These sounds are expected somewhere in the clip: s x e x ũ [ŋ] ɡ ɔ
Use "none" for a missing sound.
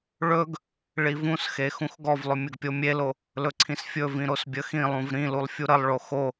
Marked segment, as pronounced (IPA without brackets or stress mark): x